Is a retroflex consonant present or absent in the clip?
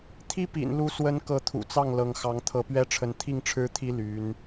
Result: present